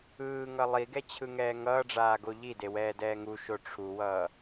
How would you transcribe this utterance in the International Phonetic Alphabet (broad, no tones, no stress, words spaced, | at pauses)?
ɯːŋʌ lˠiɡɛt͡ɕʰɯŋɛː ŋʌːɖ͡ʐaːɡo ʎidewɛːdɛː ŋuʃo ʈ͡ʂʰuwʌː